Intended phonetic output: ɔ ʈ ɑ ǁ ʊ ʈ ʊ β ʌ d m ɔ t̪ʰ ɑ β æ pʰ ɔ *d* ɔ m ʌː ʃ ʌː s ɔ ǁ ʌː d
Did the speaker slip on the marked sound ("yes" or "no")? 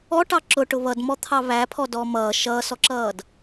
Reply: no